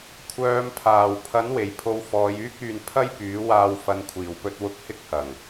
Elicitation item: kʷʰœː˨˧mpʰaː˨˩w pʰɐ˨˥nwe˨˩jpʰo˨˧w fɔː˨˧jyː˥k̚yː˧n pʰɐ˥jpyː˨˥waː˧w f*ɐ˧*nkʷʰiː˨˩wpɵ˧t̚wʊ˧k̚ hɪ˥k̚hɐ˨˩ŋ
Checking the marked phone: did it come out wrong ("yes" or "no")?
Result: yes